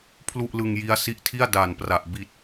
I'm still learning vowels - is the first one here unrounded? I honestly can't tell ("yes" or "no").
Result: no